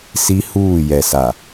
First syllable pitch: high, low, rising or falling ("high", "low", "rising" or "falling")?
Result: high